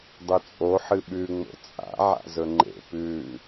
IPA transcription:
dˤ ɵ t͡sʼ o ħ ɨ ɓ ʉ ŋ͡m o̰ t͡sʼ a̰ ʕ a̰ z ɵ ŋ͡ǃ ḛ p ʉ

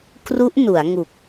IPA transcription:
k r u˦˥ ʔ n u˩˦ a̯ ŋ u˨˩ k̚

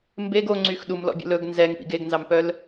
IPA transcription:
m b e ɡ o ŋ͡ǀ y x ɗ u m l ɔ̰ bʲ o̰ l ɵ ɡ n z ɛ ŋ p ḭ ɡ e ɡ n z ɑ m p œ l

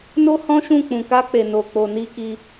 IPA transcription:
n o˦ h ɔ̃˦ ʃ ũ˦˨ k͡p ũ˨ k a˧ k͡p e˨ n o˨ k͡p o˨ n i˧ k i˧

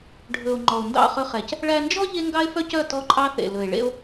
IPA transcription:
ɖʱ ɵ˨ o̯ ŋ͡ǃ ɔ˨ o̯ n d ɑ̰˦˨ χ ɵ˧ χ ɛ˨ c | ɭ æ˧ n d͡ʒ ɔ˦ ʎ e˦ ŋ ɡ ɑ˦ e̯ f œ˦ c œ˦˨ t ɔ˦ ǃʼ ɑ˦ θ ḛ˨ l ɵ˨ e̯ ɭ ḛ˦ o̯

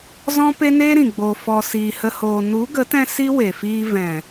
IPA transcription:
z ɔ̃˦ p e˦ n eː˦ ɾ ĩ˨ ɡ͡b o˧ f ɔ˧ s iː˧ h ə˦ h oː˧ n u˨˦ ɡ ə˨˦ t ɛ̃˧ s i˦ w e˨ f iː˧ v ɛ̃˨

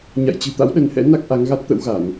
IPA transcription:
ɲ a̰˧˨ j t͡ɕ ɨ̤˨˩ t̪ a̰˧˥ w ɗ ə˨˦ n h ɛ̰˧˥ n a˦˥ k̚ ʔ a˨˦ ŋ ɣ a˦˥ t̚ t̪ ə̰˧˥ w ɣ a˧˩˨ n

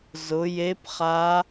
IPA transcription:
z ʊ˩˧ j e˧˥ p χ a˧˥

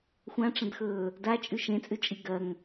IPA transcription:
xʷ ã ʈ͡ʂ ɐ̃ d x ɵː | d a t͡ʃʼ ʉ ʃ ẽ t͡sʼ ʉ t͡ʃʼ i ɡ ɐ ŋ

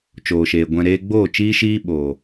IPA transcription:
t͡ʃ oː˨ ʃ eː˨ ɡʷ ɛ̃˨ ɾ eː˧ ɡ͡b oː˦˨ t͡ʃ iː˦ ʃ iː˦ ɓ oː˨

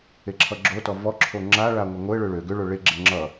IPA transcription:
e ǁʰ ʌ ɡ͡ǁ o t ɔ v ɔ ǁʰ o ŋ͡ǁ a ɭ a ŋʷ ɛ ŋʷ ɘ ɭ ø ɭ ø ɡ ʏ ɭ o ɭ e ɡ͡ǁ ɛ ŋ͡ǁ ʌ

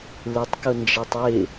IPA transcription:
l ɪ tˤ k ʊ n d͡ʒ ɛ tˤ w ɪ

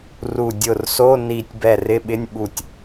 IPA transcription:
r u˧˩ dʲ ʊ˧˩ r s o˧˥˧ n i˧˩ tʲ b ɛ˧˩ r ɪ˧˥˧ ɓ ɪ˧˥˧ nʲ ɓ u˧˩ tʲ

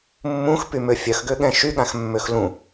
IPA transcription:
mː ũ x p y m ø fʲ œ x ɡ ø ɠ ɛ̃ ʃ y ɠ ã x mː ø x l ũ

